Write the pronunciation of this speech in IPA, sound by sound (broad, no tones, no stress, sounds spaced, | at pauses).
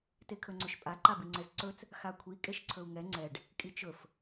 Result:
t e kʰ ɵ ŋ͡ǀ ɵ ʃ pʼ a ǃ a b i ŋ͡ǀ ɛ z ǀ ɵ t͡s | x a kʷʰ i kʼ e ʃ ǀʰ ɵ u̯ ŋ ɛ ŋ͡ǀ ɛ ɖ | kʼ i t͡ʃ ɵ f